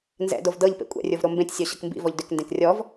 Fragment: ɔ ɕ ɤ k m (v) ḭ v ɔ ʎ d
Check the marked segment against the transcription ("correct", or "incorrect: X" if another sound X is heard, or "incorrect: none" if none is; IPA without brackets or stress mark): incorrect: b